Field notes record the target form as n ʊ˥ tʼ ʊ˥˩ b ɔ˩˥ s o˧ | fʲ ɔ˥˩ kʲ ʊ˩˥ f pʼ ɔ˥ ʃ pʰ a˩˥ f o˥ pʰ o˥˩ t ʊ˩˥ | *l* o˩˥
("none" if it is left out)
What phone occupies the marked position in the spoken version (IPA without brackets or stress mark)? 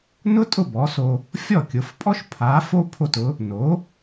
n